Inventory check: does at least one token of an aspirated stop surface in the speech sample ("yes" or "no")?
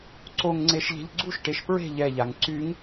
no